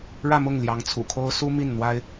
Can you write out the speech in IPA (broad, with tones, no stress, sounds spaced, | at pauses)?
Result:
ɻ ä˥˧ m ʊ˥˩ ŋ l j ɑ˧˥ ŋ t͡sʰ ṵ˨˩ kʰ o˥ ʊ̯ s u˥ m i˥˩ n n̪ w a˥ ɪ̯